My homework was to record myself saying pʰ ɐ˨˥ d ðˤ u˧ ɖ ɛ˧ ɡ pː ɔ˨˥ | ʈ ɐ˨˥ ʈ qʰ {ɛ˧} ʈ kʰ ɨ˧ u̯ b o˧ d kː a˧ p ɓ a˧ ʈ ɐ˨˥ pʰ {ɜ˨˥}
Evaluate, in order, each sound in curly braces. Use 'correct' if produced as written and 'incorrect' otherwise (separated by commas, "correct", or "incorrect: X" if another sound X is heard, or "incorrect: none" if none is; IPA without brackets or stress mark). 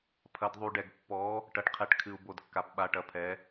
correct, incorrect: ɛ˨˥